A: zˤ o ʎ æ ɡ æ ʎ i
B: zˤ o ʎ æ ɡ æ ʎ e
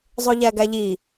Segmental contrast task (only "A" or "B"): A